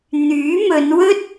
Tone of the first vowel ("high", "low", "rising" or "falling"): rising